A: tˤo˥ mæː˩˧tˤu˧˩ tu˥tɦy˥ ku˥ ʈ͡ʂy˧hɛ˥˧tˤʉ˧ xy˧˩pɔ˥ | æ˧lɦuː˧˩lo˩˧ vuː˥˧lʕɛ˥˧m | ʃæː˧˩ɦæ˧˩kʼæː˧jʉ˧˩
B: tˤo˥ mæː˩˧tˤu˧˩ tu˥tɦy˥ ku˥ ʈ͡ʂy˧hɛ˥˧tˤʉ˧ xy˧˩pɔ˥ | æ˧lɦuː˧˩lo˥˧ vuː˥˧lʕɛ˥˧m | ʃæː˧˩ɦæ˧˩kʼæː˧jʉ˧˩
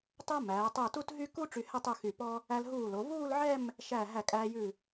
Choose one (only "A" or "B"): A